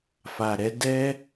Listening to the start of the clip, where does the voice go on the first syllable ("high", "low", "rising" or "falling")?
low